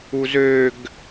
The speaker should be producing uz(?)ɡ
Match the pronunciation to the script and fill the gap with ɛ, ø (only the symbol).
ø